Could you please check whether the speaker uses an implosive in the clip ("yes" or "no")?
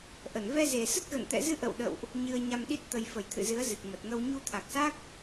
yes